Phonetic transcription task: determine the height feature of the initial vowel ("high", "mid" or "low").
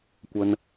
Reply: low